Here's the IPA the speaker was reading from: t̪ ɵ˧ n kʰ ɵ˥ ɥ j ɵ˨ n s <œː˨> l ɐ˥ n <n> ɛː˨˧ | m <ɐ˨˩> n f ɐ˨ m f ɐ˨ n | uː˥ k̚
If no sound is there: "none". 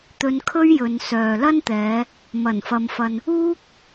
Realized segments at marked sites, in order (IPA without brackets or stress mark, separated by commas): œː˨, t̪, ɐ˨˩